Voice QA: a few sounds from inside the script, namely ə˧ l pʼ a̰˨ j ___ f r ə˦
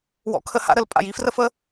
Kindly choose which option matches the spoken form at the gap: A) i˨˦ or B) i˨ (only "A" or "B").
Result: A